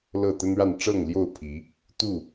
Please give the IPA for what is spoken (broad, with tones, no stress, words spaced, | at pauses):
lɤ˥˨ t̪ə˦nɻa˥˨n ʈ͡ʂɤ˥˨ŋljo˥˨ʊ̯pʰi˨˦ | t̪u˥˨